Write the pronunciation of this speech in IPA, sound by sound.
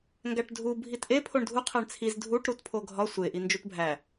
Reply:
ŋ ɡ æ ʈ dʱ u bʱ i t ʔ e pʰ o ɳ dʱ u qʰ æ ɳ t͡sʰ i z dʱ u ʈ ɾ u t pʰ o ɡʱ ɒ sʷ e ʔ i n d͡ʒ u t bʱ æ

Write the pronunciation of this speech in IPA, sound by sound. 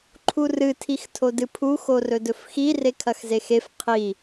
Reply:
ǃʰ u r ɨ tʰ i x tʰ o d ɨ pʰ u x o r ɵ d ɵ f x i r e kʰ ɐ x z e x e f qʰ i

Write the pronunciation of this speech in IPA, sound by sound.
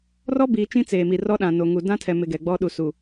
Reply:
r ɔ˦ b iː˨ t͡ʃ ĩ˦ t͡s eː˨ m i˨ r ɔ˦ ɗ ã˨ n o˨ ŋ u˨ d ã˦ tʰ ɛ˨ m ɪ˨ ɡ ɛ˨ ɡ͡b ɔ˦ ɗ u˨ s u˨

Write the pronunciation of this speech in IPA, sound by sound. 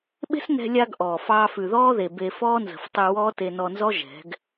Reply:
ɓ e̤˦ s n ɛ̤˧ lʲ a˧ ɡ ʔ ɔː˨ f ɑː˦ f ʉ˨ ð ɔː˦ ð e˨ b e˧ f ɔː˦ n z ə̤˨ f tˤ ʉ˧ w ɔː˦ t e˧ n ɔ˧ n z ɔ˦ ʒ ɛ̤˨˦ ɡ

